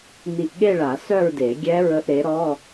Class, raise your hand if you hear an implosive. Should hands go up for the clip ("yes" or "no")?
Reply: yes